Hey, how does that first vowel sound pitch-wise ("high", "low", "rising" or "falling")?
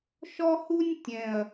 high